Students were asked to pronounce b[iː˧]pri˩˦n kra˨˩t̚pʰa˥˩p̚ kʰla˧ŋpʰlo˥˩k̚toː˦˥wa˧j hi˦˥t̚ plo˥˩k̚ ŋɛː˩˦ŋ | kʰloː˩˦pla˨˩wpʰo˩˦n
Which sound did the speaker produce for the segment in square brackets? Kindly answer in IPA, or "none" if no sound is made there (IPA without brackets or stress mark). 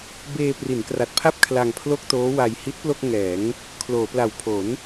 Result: eː˧